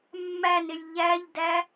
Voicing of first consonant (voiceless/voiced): voiced